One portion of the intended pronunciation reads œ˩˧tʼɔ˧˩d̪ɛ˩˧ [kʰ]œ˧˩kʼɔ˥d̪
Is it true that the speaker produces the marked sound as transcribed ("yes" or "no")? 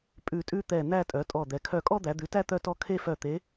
yes